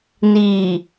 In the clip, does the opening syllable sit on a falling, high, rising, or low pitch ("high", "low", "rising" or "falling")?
low